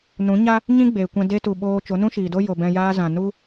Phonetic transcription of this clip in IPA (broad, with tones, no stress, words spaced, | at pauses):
nũ˨˦ɲa˦ | ɲĩ˦ɡ͡beː˨kʷɛ̃˧ de˧tu˨ ɓoː˧ t͡ʃo˨˦nũ˦ʃiː˨do˦ jo˨bɛ̃˧ jaː˧ zã˨nu˦